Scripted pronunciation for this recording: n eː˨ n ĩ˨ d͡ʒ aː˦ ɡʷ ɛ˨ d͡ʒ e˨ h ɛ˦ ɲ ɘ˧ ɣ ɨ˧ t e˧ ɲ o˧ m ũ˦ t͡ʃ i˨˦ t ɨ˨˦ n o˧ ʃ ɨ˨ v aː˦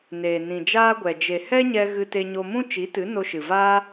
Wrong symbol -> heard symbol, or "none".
ɘ˧ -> ɛ˧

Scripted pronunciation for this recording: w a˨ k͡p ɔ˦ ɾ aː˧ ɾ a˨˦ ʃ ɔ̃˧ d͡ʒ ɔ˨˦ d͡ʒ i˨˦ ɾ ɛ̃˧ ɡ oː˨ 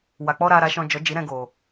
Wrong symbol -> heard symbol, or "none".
none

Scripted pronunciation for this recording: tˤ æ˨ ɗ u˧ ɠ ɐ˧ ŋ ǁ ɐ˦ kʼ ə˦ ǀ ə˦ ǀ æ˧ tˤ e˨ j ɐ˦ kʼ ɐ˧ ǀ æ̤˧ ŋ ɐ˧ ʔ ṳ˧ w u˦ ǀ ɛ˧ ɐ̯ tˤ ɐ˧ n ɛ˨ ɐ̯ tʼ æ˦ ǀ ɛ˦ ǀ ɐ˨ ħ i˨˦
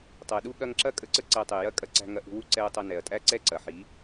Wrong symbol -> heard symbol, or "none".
none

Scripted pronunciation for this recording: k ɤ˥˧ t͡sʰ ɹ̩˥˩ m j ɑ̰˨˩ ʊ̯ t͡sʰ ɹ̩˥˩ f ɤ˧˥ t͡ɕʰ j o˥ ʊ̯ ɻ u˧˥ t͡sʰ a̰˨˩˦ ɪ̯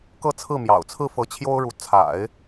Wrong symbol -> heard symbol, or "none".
none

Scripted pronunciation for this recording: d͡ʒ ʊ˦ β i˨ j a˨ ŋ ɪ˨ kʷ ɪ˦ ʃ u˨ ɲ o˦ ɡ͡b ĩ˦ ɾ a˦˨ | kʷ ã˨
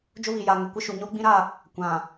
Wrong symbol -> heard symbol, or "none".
none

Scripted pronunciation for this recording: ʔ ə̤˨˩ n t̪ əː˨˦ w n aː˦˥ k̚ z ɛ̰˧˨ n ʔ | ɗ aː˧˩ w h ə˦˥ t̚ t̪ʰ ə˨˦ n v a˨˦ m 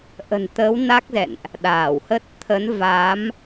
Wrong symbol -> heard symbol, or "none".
none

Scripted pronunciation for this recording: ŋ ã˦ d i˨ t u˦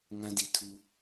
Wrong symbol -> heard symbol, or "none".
t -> tʰ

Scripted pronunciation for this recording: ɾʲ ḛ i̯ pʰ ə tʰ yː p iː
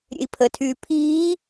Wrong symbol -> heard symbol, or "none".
p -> pʰ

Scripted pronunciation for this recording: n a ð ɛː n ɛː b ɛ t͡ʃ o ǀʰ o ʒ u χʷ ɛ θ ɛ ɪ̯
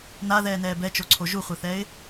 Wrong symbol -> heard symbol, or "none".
none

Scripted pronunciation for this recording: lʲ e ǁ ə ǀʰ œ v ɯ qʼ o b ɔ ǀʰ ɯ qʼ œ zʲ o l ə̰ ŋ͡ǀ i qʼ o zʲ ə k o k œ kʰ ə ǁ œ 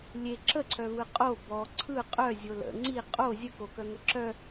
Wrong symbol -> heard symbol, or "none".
kʰ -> ŋ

